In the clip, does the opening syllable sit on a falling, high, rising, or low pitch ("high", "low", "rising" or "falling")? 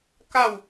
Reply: falling